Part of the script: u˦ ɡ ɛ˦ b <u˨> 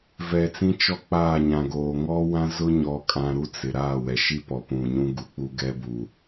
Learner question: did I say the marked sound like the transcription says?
yes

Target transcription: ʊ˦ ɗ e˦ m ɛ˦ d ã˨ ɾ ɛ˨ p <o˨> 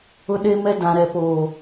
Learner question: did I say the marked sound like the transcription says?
no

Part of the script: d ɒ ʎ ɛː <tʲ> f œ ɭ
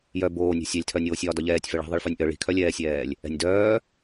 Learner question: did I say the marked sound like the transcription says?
yes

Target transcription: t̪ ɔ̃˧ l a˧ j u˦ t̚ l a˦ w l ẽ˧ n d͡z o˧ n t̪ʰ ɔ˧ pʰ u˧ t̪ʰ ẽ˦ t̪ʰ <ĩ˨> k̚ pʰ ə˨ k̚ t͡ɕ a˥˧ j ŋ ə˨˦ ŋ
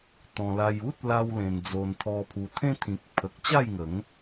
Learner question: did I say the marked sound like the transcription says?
yes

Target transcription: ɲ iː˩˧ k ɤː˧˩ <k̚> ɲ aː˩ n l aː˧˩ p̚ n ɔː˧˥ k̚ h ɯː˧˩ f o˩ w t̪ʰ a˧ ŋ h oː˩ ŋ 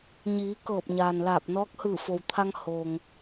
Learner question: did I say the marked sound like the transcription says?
no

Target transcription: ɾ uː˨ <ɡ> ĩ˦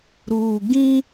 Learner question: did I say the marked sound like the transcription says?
yes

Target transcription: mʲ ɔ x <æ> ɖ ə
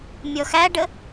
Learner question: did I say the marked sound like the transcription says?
yes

